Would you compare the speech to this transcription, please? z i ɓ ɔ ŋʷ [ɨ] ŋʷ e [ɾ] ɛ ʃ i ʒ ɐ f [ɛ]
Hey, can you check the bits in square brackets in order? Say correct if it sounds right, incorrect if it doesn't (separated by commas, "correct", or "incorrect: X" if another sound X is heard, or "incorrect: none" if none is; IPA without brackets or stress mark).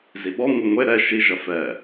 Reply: correct, correct, correct